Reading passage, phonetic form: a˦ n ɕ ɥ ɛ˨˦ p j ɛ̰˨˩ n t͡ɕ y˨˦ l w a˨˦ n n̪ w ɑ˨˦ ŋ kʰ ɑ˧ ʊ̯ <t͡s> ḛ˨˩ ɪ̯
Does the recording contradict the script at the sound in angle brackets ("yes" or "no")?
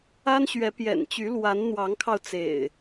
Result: no